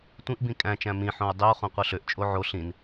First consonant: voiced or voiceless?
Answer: voiceless